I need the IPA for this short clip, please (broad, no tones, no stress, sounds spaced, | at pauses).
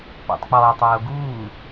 p ɔ̰ tˤ k͡p ɔː tˤ oː ɡ uː